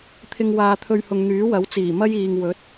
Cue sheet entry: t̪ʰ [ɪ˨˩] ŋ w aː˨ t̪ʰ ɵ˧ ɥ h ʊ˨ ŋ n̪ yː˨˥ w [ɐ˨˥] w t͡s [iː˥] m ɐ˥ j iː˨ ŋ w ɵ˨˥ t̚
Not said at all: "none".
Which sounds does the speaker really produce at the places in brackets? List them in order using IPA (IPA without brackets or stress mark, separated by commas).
ɪ˨, ɐ˨˥, iː˨˩